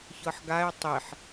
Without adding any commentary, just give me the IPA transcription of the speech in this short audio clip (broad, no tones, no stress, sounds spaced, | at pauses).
ç ɤ ħ ɡ a ɪ̯ tˤ i ħ